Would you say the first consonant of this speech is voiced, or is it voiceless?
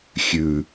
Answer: voiceless